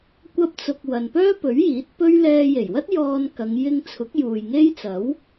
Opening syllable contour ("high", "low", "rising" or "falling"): high